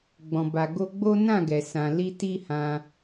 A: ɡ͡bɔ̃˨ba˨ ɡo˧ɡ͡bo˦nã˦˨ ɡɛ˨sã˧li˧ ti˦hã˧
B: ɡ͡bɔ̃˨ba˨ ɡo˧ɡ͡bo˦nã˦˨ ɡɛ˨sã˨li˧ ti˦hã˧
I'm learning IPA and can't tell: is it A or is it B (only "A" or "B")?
B